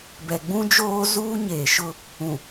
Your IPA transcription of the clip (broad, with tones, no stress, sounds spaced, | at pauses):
b ɛ˨ ɡ͡b ũ˦ d͡ʒ oː˦ z uː˦ ɲ eː˨ ʃ ʊ˦ | ũ˨